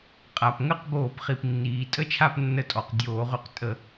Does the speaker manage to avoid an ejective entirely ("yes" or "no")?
no